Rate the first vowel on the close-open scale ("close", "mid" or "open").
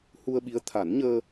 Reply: close